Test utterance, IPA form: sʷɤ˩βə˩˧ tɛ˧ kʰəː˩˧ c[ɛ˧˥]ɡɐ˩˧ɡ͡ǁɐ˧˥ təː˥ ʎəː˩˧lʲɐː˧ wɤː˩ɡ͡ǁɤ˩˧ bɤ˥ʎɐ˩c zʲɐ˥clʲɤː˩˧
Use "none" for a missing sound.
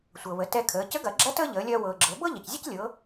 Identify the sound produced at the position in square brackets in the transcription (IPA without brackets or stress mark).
ə˧˥